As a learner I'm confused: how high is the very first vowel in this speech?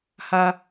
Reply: low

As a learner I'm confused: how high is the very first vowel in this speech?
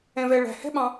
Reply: mid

